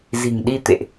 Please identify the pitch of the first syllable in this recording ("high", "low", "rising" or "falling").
low